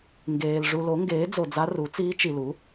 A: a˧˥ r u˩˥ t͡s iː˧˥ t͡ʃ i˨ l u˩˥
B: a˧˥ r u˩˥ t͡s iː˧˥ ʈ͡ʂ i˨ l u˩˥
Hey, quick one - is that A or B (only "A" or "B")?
A